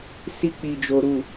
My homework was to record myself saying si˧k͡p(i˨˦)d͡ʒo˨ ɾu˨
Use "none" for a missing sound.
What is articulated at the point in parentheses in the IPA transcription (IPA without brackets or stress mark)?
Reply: i˨